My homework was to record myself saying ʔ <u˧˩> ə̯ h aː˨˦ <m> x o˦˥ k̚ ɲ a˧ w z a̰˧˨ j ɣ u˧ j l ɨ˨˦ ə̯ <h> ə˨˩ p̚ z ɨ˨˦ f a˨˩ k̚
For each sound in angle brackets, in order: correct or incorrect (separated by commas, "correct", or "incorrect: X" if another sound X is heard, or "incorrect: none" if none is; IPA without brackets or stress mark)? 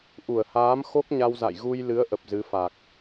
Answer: correct, correct, incorrect: ʔ